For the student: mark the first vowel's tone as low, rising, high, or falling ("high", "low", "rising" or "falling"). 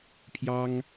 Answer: high